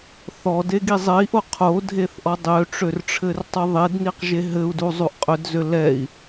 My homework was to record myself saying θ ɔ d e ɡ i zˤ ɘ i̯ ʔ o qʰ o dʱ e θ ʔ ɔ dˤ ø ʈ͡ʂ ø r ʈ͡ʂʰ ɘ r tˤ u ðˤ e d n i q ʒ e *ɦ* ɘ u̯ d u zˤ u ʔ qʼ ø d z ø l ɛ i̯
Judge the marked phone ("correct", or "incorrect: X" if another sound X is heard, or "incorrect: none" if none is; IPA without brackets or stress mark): correct